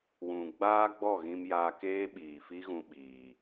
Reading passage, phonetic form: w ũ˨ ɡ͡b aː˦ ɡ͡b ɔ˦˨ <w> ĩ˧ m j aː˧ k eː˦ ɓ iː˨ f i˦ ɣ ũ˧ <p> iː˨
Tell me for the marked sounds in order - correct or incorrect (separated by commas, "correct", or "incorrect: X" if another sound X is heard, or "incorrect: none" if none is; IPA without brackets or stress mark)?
incorrect: ɣ, incorrect: ɓ